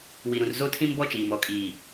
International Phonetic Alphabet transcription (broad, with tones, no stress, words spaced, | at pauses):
wi˨ɾũ˨rzo˦tʰĩ˦m bɔ˦t͡ʃiː˨m ɔ˨kʼiː˨